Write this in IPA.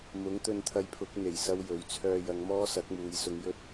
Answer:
mʊ˨˥ŋt̪ɵ˧nt̪ʰɐ˧jpʰʊ˨˥k̚ n̪e˨˩j sɐ˥wjɵ˨˧ɥ t͡sʰœː˧jɐ˨˧ŋmɔː˥ sɐ˨˥k̚muː˨˧jsʊ˧ŋjɵ˥t̚

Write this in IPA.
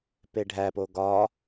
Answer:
peɖʱæpo ɡɒ

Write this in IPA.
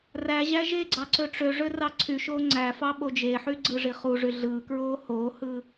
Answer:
ræʑæ ʒeɡ͡ǀɑ ǀøʈ͡ʂøʐø rɑǀʰyʃoː ŋ͡ǀæfɑ ɓod͡ʒeħy ɡ͡ǀɯʐiχuʐy ɮɯːkɹoː hoːhɯː

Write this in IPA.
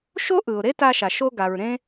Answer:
ʃo˥ʔɯ˩ʊ̯ ɾe˥ta˧ ʃa˩ ʃo˧ɡa˩ɹ ɾẽ˧

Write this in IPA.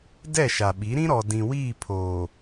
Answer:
dɛ˦˨ʃa˨ɓi˨˦ ɾĩ˦ɾɔ˨ dĩ˨wiː˦˨pʰoː˨

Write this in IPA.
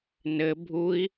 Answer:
nɘ bʱui̯

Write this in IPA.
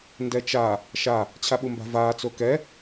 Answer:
ndɛt͡ʃa | ʃa | t͡ɕʰaɓumba̤vaː t͡sokɛ

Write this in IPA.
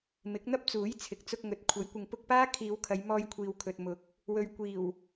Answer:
mɪ˨˥k̚n̪ɐ˥p̚t͡suː˨˥j t͡sʰɪ˨k̚t͡sʊ˧k̚ŋɵ˨˥t̚ kʷʰɐ˨˥jkʷɪ˨ŋ pʊ˧k̚paː˥ kʰiː˨˧wkʰɐ˨˧j mɔː˧jkʷʰiː˨wkʰɵ˨t̚mʊ˨˥k̚ | wɵ˨ɥkʷiː˨˩w

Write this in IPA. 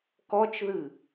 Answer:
kɔt͡ʃðɨ

